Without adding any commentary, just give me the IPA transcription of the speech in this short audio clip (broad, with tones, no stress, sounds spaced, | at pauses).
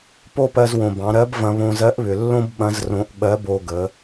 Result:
p o˥ p ɜ˧ z w õ˩ b ɑ̃˩˧ ɾ ɜ˧˥ b v ɐ̃˧ β õ˧ z ɜ˧˥ ʔ β ʏ˩ lː õ˥ b ɓ ɐ̃˧˥ z r õ˧ ʔ ɓ ɜ˧˥ b o˧ ɡ ə˩˧